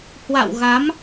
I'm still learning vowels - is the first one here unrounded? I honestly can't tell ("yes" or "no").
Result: yes